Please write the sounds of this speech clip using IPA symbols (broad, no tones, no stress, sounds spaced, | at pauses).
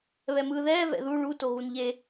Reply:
β ɛ m ɯː ð ɛː v ɛ̰ ð u ɭ u t o ɣ u n ʎ e